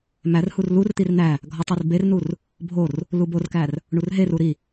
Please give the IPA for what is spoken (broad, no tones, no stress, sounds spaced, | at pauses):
m æ r h u r l u r t̪ i r n̪ æ | ɡʱ ɒ tˤ i r b e r n u r | bʱ o r | l u b o r k æ r | ɳ u r ɦ e r u ɾ i